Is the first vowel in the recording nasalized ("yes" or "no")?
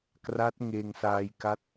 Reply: no